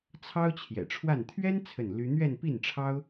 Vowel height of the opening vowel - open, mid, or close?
open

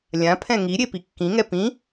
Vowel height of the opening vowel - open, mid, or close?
open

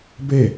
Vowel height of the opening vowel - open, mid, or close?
mid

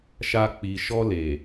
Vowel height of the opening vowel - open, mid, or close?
open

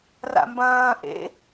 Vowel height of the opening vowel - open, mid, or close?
open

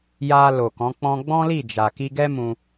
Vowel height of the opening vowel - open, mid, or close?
open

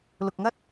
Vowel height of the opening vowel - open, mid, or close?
close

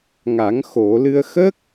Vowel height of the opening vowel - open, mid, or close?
open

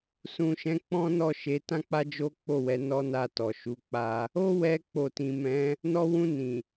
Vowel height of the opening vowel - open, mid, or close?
close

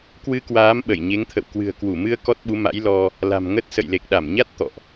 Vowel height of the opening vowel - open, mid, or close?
close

